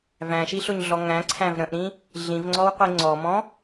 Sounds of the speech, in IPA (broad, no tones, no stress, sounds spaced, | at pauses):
v æ̃ ʃ i ɬ ʊ ɲ ɮ ɔ ŋ æ̃ ǀʰ æ̃ v ɾ ə̃ ʔ ɾ ĩ | ɮ ĩ v ŋ͡ǀ ɔ w qʷ i ŋ͡ǀ ɔ m ɔ̃